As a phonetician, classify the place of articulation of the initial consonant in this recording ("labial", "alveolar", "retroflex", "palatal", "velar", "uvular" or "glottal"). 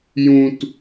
palatal